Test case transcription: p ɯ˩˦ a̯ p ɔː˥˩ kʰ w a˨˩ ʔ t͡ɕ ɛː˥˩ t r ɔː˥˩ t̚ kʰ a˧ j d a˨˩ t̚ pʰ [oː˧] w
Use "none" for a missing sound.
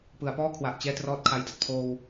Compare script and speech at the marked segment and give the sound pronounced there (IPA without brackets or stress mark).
oː˧